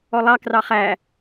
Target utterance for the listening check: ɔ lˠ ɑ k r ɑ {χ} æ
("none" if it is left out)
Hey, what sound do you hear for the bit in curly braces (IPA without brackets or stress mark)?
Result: χ